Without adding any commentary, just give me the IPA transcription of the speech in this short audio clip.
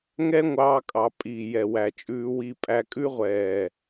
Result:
ŋɛ˦ŋʷɑː˧kʼɑ˨ pʼiː˨jɛ˨wæ˨ t͡ʃʼʉː˧wi˧pʼæ˧kʼʉ˦ ʁʷɛː˨

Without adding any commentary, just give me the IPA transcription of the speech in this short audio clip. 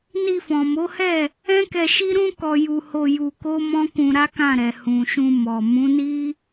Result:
ni˧fɔ̃˨mo˨˦hɛ˦˨ | ɛ̃˦kɛ˧ʃi˦ɾũ˦ kɔ˧ju˧ho˧ ju˧ko˦mɔ̃˦kũ˧ ɾa˦kã˦˨ɾɛ˨ hũ˨ʃũ˧ mɔ˨ mũ˨˦ni˦

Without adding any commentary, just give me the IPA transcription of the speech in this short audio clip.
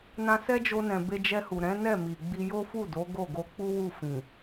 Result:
nã˧sɛ˦d͡ʒo˧nɛ̃˨ be˧d͡ʒɛ˧hu˨ ɾɛ̃˨˦nɛ˦˨ mi˨ɡ͡bi˧ jo˦fu˦˨ do˨˦ɡo˦˨ ɡo˧k͡pu˦ wu˦˨fĩ˨

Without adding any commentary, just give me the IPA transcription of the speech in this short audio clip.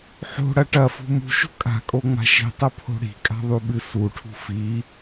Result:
ħo̤ɽɐ ʈɐfṳ mṳʃo̤ kʼa̤kʼo ŋ͡ma̤ʃi̤tˤɐ pʰo̤ɽi̤kʼa̤ ðˤuɓɨsuʈʰṳ fi

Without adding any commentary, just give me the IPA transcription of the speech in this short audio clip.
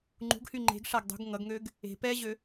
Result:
ŋ͡ǃṳɡhy ŋ͡ǃe̤ɡ ʂaɡ dˤṳɡ ŋʌɡŋøɡ | e̤ pɛʑø

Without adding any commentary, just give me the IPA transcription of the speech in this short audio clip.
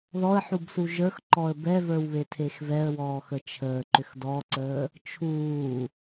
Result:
ðɔə̯ħubsu ʒə˞xǃɔə̯ bɛvə˞wβe tʰexvɛə̯wɔː xət͡ʃʰəːǃʏx dɔǀəː | t͡ʃʰuː

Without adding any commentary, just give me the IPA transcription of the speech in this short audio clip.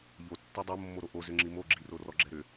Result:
ʎo tːɛdˤo mːoɾoʔo zʏŋ͡ǁimo ɡ͡ǁi rorɔɡ͡ǁɛɾʏ

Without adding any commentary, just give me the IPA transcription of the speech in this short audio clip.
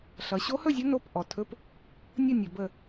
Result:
ɬʌ˩˧ɕo˧˥hɵ˥˨zʲə˧˥ no˧˥˧p ʔɔ˩˧tʰɵ˧˥˧p | nʲə˥˨ nʲɵ˩˧bə˥˨

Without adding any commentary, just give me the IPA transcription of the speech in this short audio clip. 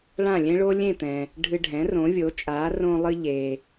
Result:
ɭã˥˩lʲẽ˥ɭo˥ lʲẽ˥˩t̪ɛ̃˩ | ɖʱɨ˧ɖʱɛ̃˩˥ rõ˩˥vʲo˩˥t͡ʃʼa˩˥ rõ˧lˠɨ˧ʎe˩

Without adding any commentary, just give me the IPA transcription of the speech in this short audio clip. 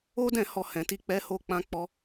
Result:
o˦dɛ̃˦˨ hɔ˧hɛ̃˨ti˧k͡pɛ˧ ho˧k͡pã˧k͡pɔ˧

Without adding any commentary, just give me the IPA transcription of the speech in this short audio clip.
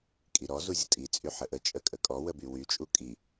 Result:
kʼiɾɔ zuzʲətʼi t͡sʼyħəʔət͡ʃʼə kʼəkʼɔwəby wyt͡ʃʼu kʼi

